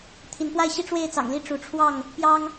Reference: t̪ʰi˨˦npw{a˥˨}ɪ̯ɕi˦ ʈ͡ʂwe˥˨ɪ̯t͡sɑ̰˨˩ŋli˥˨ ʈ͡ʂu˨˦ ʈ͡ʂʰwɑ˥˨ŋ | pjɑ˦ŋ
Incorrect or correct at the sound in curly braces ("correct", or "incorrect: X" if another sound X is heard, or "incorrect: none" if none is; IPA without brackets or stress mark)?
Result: correct